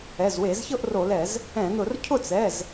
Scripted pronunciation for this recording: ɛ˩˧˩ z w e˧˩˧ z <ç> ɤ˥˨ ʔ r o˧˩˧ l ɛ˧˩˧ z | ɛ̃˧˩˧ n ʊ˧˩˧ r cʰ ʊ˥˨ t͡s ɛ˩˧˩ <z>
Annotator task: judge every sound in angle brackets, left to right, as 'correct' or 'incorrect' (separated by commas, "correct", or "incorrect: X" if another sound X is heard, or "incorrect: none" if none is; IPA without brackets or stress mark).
correct, correct